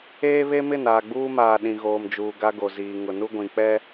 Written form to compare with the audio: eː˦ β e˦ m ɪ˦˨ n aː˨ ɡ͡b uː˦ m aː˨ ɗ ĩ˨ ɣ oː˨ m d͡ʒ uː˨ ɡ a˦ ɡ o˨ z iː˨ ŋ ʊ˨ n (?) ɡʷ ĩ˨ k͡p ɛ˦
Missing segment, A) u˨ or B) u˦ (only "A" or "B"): B